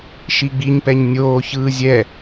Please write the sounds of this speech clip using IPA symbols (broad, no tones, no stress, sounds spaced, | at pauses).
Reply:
ʃ i ɡ͡b i ɲ p ɛ ɲ nʲ oː ç ɯː zʲ ɛ